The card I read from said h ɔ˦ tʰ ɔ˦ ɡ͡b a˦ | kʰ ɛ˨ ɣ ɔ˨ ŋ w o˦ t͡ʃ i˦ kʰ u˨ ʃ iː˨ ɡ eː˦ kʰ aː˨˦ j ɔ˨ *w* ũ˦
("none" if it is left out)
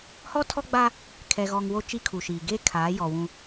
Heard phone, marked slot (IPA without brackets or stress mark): w